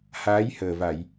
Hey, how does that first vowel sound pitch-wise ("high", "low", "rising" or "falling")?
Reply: rising